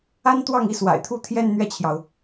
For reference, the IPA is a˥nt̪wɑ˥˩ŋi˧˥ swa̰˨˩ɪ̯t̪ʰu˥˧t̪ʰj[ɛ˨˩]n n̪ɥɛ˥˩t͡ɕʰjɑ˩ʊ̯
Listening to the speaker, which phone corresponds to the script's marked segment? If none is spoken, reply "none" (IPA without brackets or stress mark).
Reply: ɛ˥˧